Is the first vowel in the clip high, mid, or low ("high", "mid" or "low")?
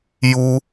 high